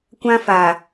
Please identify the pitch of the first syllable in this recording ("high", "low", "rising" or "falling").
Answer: high